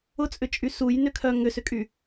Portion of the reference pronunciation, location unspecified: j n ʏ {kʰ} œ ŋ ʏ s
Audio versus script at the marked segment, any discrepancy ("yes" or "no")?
no